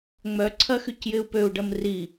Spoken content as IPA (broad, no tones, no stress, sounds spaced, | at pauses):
ŋ͡m œ ǀʰ ɐ x y c j ɪ u̯ p ø u̯ ɖ ɐ m r i